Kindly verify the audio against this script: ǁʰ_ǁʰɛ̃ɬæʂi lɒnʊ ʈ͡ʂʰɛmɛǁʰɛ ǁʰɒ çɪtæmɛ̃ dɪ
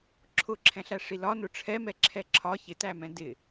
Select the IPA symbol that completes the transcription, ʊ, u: ʊ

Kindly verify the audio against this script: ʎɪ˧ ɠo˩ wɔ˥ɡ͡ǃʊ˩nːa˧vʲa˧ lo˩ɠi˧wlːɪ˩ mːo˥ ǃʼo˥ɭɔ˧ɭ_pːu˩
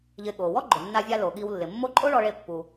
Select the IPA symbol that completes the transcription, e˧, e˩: e˧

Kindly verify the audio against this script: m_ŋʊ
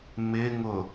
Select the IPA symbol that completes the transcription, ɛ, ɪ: ɪ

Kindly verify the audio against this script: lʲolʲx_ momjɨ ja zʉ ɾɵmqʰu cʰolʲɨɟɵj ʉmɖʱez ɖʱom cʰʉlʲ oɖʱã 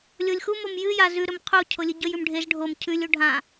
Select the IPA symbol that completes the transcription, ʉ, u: u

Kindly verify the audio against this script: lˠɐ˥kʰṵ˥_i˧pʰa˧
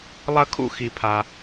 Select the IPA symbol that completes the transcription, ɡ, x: x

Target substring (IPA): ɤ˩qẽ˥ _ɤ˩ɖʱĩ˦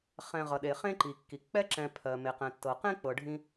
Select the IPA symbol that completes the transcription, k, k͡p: k͡p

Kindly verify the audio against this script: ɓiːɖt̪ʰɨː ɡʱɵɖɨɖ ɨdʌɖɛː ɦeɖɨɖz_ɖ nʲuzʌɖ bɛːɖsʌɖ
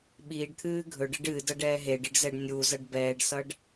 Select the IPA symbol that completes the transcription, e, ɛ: ɛ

